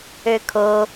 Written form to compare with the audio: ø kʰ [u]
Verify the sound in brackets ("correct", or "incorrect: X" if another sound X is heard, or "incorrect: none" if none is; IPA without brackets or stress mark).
incorrect: o